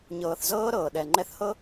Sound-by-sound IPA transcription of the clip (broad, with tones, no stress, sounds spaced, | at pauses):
ɲ ɤː˨ θ z ɤː˦ ɾ ɤː˨ ɗ ɛ˨ ŋ͡ǃ ɛ˦ θ h ɤ˦